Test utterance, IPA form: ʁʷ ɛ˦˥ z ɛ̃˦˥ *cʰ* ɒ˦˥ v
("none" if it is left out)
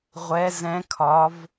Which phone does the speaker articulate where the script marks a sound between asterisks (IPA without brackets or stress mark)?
kʰ